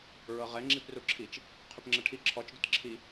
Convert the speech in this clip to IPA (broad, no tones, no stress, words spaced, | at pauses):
ɹɤʁɛ ŋ͡ǁipruǁʰit͡ʃ | qʰʏpŋ͡ǁəʈʰi ǁʰɔt͡ʃ dʏtǁʰi